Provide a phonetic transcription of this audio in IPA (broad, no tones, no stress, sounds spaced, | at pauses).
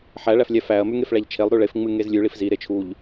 ħ æ ɭ æ f lʲ æ f æ ɐ̯ m ʉ ŋ e f ɭ æ ʎ t͡ʃʰ e lˠ ɾ ʉ ɭ e f ŋ͡m ɨ ŋ e z lʲ ʉ ɭ i f z i ɾ e t͡ʃʰ u ʎ